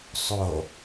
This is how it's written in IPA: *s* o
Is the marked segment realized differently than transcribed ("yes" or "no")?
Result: yes